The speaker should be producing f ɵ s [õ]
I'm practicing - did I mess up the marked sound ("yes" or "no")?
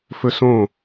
no